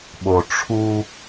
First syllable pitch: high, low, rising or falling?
low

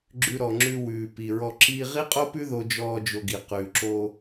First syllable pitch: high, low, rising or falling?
high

